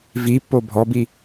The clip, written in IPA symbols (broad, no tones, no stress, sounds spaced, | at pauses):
v i pː o bʱ ɔ b i